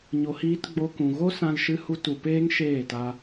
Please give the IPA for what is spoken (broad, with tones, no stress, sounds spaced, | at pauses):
ɲ o˨ h iː˧ t ɡ͡b o˧ k ũ˨ ɣ o˦ s ã˧ l ʃ ɨ˧ h u˧ t u˨ p eː˦ ŋ ʃ eː˦˨ t a˧